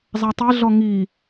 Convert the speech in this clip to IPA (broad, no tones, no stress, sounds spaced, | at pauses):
zˤ a tˤ e ɮ ɔ ŋ i